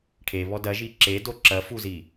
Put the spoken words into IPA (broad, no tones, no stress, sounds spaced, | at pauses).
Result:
ʈʰ e β ɔ d ɐ ʒ i ǁ e d o ǁ ɐ f u z i